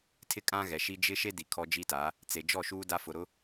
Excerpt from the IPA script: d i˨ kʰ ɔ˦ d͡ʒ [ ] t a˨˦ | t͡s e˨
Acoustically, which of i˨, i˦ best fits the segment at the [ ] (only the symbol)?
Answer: i˦